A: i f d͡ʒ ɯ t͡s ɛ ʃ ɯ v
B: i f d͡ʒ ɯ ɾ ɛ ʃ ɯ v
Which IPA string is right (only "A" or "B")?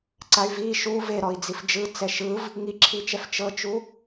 A